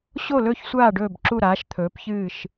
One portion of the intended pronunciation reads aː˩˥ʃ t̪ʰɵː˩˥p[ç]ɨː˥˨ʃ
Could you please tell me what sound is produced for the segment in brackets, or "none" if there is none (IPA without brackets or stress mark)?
ç